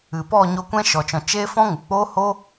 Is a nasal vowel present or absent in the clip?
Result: present